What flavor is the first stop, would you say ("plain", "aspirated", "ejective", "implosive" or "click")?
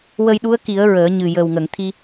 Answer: implosive